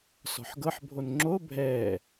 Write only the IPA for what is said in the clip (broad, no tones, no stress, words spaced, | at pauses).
sɔ̤ħɡɤħ bʱonŋ͡ǁo bʱɛː